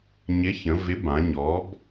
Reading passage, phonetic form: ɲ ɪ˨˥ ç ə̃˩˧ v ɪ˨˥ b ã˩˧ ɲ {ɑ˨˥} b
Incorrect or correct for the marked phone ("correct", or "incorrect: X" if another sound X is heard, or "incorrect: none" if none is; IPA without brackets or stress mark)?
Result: incorrect: ɔ˨˥